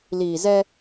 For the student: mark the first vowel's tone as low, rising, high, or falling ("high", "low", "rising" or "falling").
low